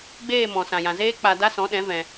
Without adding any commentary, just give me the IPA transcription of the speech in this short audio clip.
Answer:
ɡ͡beː˦˨mɔ̃˨sã˨jã˨ zeː˦k͡pa˧da˦ sɔ̃˨˦ɗɛ̃˨˦ vɛ̃˧

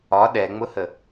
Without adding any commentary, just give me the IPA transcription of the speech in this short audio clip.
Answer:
ɒ ɗɛŋ͡mʊhə

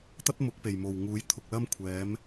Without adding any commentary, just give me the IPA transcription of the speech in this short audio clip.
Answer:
t̪ɐ˥t̚mʊ˨˥k̚pe˨˩jmo˨˩w ŋuː˨˥jt̪ʰʊ˨k̚lɐ˥m kʷʰɛː˨˥m

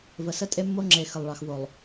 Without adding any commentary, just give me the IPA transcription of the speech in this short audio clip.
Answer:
və˨sə˦ tʼe˦mːo˦ ŋ͡ǁe˨ xə˨lˠɭɑ˨xvo˨lˠ

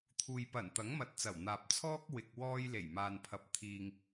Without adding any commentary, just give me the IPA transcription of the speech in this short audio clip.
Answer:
t̪ʰuː˨jpɐ˨˩n t̪ɐ˨˥ŋmɐ˨˥t̚t͡sɐ˨˩w n̪aː˨p̚t͡sʰɔː˥k̚wɪ˨k̚ wɔː˧j le˨˩jmaː˨npʰɐ˨˥p̚ t̪ʰiː˨ŋ

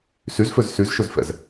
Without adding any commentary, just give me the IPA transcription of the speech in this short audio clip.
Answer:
syzføz syzʃøzfɛ̰z

